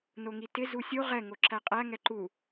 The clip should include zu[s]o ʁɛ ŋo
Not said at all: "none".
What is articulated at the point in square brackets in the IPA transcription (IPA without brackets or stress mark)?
sʲ